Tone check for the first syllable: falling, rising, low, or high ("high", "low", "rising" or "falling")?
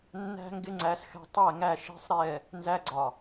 high